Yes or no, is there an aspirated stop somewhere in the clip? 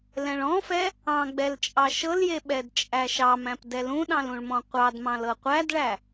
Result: no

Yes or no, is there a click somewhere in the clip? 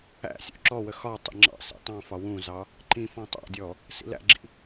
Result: yes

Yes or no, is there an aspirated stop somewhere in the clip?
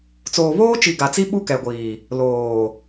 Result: no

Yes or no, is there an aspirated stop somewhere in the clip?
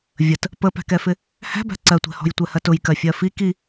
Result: no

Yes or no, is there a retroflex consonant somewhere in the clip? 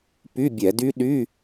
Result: no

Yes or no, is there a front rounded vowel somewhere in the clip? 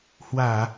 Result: no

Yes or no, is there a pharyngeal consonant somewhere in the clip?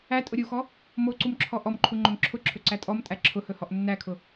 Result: no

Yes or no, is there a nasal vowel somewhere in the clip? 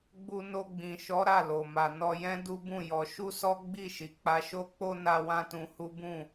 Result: yes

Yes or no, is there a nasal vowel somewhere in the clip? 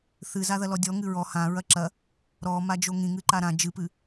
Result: yes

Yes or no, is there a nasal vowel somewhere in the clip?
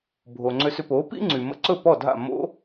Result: no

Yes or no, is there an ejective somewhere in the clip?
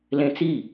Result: no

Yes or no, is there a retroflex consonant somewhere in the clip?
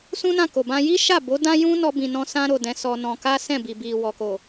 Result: no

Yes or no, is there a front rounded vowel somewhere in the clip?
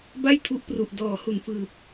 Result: no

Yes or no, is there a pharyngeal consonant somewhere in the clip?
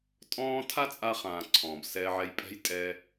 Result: yes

